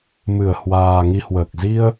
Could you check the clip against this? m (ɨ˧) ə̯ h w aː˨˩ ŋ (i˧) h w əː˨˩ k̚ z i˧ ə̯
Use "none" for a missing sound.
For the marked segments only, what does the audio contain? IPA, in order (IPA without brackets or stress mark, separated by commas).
ɨ˧˩, i˧